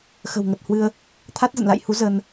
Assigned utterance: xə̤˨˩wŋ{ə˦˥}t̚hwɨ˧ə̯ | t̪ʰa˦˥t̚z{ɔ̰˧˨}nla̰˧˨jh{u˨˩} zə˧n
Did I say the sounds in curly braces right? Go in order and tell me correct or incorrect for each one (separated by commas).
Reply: incorrect, incorrect, incorrect